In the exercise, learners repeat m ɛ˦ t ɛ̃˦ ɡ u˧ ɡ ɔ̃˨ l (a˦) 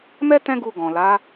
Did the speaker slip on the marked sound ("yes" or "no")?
yes